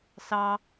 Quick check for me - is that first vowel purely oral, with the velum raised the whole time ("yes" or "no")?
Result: yes